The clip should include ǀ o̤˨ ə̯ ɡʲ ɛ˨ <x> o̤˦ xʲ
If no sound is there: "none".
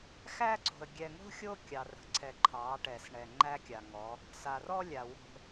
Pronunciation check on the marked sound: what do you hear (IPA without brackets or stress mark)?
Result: ŋ